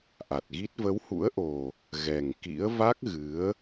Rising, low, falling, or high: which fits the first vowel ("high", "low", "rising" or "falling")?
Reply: low